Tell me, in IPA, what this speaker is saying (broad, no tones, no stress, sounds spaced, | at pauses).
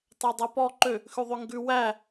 tˤ ɛ dˤ æ p ɔ ǃ ø | x ʉ ðˤ ø ŋ ɡ ʉ w æ